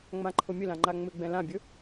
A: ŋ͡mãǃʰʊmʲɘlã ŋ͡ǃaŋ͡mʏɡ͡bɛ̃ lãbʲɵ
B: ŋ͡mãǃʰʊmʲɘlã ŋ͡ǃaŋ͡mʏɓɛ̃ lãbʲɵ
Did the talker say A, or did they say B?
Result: A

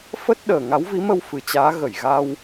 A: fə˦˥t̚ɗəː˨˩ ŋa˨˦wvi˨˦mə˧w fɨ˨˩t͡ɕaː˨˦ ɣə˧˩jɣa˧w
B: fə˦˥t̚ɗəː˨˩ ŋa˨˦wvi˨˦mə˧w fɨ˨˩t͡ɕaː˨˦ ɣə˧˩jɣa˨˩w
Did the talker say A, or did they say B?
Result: A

